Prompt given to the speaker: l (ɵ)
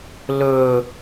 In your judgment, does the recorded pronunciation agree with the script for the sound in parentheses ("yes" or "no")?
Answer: yes